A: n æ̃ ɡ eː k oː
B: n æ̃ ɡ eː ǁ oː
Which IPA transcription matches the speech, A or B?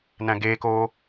A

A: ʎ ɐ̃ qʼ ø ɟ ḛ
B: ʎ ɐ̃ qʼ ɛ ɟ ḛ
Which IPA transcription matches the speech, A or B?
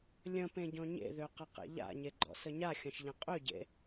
A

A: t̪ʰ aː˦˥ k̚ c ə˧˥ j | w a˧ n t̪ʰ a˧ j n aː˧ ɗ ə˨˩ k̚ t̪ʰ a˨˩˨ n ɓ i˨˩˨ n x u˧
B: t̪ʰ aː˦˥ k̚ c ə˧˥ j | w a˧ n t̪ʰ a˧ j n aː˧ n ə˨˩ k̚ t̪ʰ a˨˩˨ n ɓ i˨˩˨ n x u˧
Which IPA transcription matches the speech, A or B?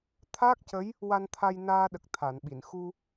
A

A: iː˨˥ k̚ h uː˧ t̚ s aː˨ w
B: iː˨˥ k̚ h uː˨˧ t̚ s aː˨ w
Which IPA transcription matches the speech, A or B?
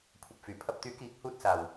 A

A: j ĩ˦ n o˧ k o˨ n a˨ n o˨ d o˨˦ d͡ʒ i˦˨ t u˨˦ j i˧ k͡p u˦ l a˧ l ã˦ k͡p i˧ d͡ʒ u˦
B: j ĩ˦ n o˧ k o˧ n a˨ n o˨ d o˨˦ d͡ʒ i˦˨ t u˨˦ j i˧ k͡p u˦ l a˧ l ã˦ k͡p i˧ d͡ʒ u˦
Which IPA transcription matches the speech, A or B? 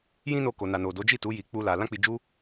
A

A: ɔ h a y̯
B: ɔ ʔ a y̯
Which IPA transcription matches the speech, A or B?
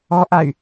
B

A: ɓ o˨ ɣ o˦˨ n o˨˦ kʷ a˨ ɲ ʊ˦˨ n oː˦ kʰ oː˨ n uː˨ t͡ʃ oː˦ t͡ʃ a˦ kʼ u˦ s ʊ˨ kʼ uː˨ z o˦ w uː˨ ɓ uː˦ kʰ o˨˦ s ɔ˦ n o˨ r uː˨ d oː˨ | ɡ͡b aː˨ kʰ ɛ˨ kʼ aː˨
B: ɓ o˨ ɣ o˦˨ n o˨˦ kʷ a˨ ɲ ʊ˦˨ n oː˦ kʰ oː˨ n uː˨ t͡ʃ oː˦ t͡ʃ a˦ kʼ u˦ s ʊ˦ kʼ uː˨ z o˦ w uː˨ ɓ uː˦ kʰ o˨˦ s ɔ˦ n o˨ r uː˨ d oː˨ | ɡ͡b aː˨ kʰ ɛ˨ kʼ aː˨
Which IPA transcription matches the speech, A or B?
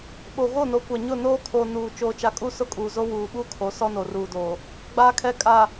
B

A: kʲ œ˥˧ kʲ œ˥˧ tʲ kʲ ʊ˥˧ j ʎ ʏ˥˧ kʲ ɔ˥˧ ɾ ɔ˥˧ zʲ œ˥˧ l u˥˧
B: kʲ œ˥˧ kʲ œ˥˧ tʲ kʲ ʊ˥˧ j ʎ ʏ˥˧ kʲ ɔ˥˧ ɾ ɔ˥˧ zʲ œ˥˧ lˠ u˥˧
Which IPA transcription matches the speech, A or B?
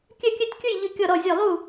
B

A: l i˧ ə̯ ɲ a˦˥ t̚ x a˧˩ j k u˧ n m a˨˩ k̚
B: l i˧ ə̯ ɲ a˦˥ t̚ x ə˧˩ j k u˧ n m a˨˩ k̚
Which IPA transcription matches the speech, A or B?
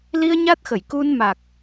B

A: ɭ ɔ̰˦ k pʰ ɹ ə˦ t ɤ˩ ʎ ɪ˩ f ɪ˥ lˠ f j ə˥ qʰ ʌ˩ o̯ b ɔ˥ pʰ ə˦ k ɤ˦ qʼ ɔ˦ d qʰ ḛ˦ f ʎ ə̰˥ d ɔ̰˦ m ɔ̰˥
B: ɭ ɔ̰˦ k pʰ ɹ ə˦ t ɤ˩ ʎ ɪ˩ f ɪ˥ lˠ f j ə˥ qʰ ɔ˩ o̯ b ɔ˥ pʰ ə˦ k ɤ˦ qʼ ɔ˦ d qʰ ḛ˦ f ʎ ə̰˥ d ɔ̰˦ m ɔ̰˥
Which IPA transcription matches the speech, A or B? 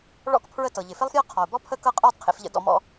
B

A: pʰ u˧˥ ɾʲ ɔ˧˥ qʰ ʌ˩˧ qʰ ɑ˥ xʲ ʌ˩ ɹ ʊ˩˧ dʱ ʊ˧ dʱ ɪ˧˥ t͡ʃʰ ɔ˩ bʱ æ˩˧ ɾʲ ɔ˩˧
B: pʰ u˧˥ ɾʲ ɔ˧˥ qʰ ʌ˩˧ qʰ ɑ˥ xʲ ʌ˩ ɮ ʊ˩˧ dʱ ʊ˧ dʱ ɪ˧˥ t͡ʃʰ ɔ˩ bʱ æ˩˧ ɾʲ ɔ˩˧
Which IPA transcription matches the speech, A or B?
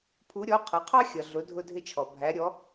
B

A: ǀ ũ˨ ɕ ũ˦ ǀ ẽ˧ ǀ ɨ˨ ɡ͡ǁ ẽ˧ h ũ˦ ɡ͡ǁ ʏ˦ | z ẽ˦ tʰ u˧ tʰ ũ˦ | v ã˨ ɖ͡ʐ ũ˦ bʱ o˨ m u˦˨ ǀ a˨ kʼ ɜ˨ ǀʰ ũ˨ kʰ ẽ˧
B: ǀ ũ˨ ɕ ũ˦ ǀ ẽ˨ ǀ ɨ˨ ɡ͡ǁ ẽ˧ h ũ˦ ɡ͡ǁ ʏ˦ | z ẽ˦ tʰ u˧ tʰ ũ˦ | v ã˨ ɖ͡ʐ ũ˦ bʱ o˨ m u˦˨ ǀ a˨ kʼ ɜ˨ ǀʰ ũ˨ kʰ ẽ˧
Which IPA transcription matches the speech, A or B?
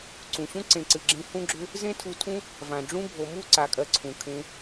B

